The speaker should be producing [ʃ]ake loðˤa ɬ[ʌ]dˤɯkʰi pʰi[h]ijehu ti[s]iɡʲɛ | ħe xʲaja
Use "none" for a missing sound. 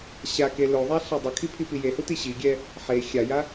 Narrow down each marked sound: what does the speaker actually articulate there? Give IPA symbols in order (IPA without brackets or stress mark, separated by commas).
ɕ, a, p, ɕ